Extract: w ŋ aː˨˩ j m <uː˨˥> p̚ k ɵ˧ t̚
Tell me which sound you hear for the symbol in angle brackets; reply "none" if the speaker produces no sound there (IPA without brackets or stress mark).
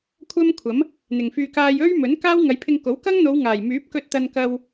yː˨˥